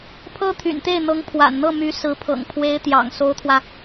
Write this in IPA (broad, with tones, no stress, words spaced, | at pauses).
pʰɤ˥t̪ʰy̰˨˩nt̪e˥˩ɪ̯ n̪ɤ˧˥ŋpʰwa̰˨˩nn̪ɤ˥˩my˧˥ sɹ̩˧˥pʰɤ̰˨˩ŋ pʰwe˧˥ɪ̯t̪jɑ̰˨˩ŋ so˧˥ʊ̯t̪ʰwä˧